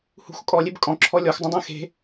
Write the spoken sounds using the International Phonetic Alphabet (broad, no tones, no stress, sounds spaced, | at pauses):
h ṳ x kʼ ɔ lʲ e b kʼ ɔ̃ ǁʰ ɔ lʲ ɔ x dˤ ũ dˤ ɛ̃ x e̤